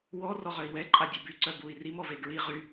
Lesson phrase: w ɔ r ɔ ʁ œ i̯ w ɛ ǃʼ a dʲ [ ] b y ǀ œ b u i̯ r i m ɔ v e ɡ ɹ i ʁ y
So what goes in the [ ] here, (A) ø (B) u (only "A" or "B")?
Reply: A